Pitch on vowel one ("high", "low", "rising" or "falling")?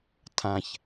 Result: low